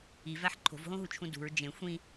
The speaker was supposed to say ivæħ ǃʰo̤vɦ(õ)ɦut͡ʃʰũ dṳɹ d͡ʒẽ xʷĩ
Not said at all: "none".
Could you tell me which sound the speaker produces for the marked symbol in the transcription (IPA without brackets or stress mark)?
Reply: õ